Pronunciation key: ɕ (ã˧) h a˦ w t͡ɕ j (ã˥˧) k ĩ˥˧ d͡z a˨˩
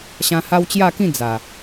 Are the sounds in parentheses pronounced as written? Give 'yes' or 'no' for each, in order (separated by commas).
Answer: yes, no